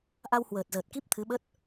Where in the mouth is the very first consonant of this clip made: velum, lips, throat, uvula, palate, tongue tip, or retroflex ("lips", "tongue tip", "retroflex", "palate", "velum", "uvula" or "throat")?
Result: throat